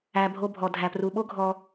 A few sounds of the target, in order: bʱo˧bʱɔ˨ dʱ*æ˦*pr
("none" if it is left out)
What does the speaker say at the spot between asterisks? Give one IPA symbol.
æ˨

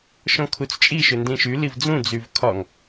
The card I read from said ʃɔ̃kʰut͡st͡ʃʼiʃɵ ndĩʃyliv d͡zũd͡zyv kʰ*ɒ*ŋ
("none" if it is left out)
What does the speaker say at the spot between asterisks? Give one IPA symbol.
ɒ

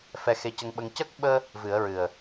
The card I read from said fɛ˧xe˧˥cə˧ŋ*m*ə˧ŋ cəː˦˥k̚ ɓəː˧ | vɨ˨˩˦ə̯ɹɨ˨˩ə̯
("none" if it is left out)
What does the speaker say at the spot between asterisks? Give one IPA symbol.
ɓ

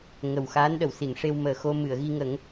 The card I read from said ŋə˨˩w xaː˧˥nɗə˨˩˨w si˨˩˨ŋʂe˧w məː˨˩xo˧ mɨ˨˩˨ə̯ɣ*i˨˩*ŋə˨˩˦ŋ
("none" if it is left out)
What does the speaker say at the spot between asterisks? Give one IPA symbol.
i˧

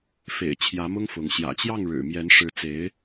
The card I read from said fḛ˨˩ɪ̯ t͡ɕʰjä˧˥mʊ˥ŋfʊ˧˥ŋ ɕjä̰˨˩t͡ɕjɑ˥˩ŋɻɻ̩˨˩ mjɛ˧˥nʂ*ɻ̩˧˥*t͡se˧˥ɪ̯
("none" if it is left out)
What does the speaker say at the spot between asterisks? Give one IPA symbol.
ɻ̩˧˥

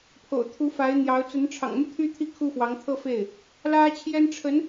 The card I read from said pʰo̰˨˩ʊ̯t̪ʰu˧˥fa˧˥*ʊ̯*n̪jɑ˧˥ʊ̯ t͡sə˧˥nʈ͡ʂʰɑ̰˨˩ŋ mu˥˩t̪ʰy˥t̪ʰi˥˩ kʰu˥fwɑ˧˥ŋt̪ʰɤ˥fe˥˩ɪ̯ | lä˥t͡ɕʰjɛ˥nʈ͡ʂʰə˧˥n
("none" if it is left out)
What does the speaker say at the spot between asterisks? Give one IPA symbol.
ɪ̯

